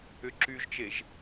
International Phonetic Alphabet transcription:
ʏ ǁ y ʒ t͡ʃ e ʒ

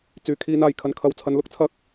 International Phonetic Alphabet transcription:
t͡s yː˨˩ kʰ iː˨˧ n aː˨˩ j kʰ ɐ˨ n kʰ ɐ˨ w t͡sʰ ɐ˨˧ n l ʊ˨˥ k̚ t͡sʰ ɐ˨˥ k̚

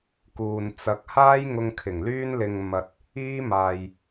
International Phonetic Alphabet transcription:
k uː˨ n t͡s ɐ˨˥ k̚ h aː˥ j ŋ ʊ˧ ŋ kʰ ɪ˨˩ ŋ l yː˥ n l ɪ˧ ŋ m ɐ˧ t̚ | iː˥ m aː˨ j

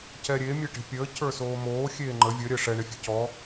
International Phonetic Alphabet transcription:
c ɛ ɾʲ e mʲ e ʈ e̤ pʲ əː cʰ ə˞ s oː m oː xʲ eː ŋ͡ǃ ə vʲ ə ɾʲ əː ʂ ɛ ɳ e fʲ e̤ c ɔ

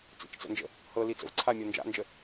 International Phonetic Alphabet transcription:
t͡s ḭ t͡ʃ t͡s ə̰ n d͡ʒ ə̰ | h ɤ l i t͡s ə̰ v ǀʰ a mʲ ɤ n d͡ʒ a̰ n d͡ʒ ə

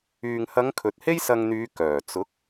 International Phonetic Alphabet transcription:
yː˨ ŋ h ɐ˨˧ ŋ kʰ ɵ˨ t̚ h e˥ j s ɐ˧ ŋ n̪ yː˨˧ k œː˨˩ t͡s ʊ˨˥ k̚

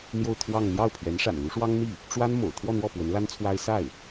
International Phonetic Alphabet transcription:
n̪ j o˥˧ ʊ̯ t̪ʰ w ɑ˥˧ ŋ n̪ j ɑ˥˩ ʊ̯ pʰ ɥ ɛ˧˥ n ʂ a̰˨˩ n l u˧˥ ʂ w ɑ˥ ŋ n̪ i˥˩ | ʈ͡ʂ w a˥ n m o̰˨˩ ʊ̯ t̪ʰ w ɔ˥˧ n̪ w ɔ˥˩ p w ə˧˥ n l a˥ n t͡sʰ w a˥ ɪ̯ s a˥˩ ɪ̯

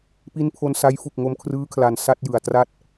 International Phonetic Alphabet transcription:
p i˦˥ n pʰ o˧ n s a˦˥ j f u˨˩ k̚ ŋ o˧ m kʰ r ɯː˦˥ kʰ l a˨˩ n s a˥˩ t̚ j ɯ˨˩ a̯ t r a˥˩ t̚

